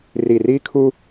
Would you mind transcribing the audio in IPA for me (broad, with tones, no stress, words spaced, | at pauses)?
ri˨ri˦kʰu˦